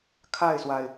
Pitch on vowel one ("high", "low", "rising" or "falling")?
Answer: falling